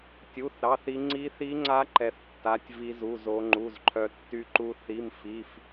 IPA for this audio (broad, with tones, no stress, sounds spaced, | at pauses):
tʲ u˧˥˧ θ ɾ ɑ˧˥˧ θ i˦˥ ŋ͡ǀ i˦˥ θ i˦˥ ŋ͡ǀ a˦˥ ǃ ɛ˦˥ θ tː a˧˥˧ tʲ v i˦˥ z u˧˥˧ z o˦˥ ŋ͡ǃ u˧˥˧ z ǃʰ œ˦˥ tː y˦˥ ǃ u˦˥ θ i˧˥˧ m f i˧˥˧ f